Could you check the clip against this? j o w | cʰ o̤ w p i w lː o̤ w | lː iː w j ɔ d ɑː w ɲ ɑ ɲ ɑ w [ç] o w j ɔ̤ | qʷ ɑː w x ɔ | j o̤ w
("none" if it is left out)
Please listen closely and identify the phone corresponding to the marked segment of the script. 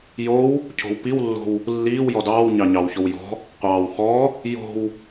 ç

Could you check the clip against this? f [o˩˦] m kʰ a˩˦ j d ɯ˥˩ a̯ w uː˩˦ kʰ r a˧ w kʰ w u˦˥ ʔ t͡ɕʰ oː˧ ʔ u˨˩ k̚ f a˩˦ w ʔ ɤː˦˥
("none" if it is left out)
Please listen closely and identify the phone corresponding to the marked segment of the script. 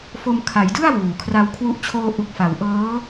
o˧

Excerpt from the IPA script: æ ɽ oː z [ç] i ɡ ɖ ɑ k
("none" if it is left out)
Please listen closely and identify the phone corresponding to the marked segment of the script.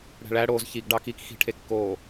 ç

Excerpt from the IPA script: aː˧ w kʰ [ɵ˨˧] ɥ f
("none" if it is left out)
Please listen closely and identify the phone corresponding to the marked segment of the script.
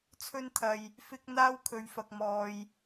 ɵ˨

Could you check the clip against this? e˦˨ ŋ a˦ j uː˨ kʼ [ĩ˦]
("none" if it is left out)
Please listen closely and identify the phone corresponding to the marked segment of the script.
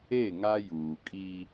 i˦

